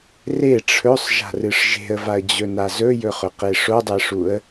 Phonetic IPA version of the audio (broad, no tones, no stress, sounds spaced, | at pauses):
r e ʈ͡ʂʰ ɵ sˤ ʒ a̤ r ɨ ʂ ʒ e̤ ə̯ v a ə̯ d͡ʑ ɵ n a z ɵ j ɵ χ ɵ q e ʂ o dˤ e ʂ u ə̯